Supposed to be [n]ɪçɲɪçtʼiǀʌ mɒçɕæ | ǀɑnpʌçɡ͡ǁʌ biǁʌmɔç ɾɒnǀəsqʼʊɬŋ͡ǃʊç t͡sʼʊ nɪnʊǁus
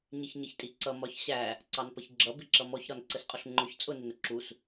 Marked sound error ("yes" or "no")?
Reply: yes